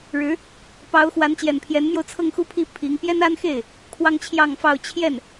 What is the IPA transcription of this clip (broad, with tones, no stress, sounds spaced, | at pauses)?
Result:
ɻ ɻ̩˧˥ | p ɑ˧˥ ʊ̯ x w a˧˥ n t͡ɕ j ɛ˨˩ n pʰ j ɛ˧˥ n m j o˧ ʊ̯ t͡sʰ ɤ˥˧ ŋ x u˥˧ pʰ i˥˩ pʰ i˧˥ ŋ p j ɛ˥ n a˥ n x e˥˩ ɪ̯ | kʰ w ɑ˥ ŋ t͡ɕʰ j ɑ˥˧ ŋ f ɑ˥˧ ʊ̯ t͡ɕʰ j ɛ˥˩ n